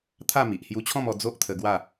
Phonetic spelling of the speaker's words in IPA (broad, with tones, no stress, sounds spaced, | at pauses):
t̪ʰ a˥˧ m i˨ ʔ h j u˧ t͡ɕʰ ɔ̃˥˧ m ɔ˧ d͡z o˦ ʔ t̪ʰ ə˧ ɡ w a˥˧